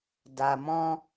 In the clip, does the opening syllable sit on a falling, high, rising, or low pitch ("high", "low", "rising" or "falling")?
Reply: low